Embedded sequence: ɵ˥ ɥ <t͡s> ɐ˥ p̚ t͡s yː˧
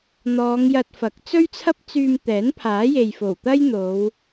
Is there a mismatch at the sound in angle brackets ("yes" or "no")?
yes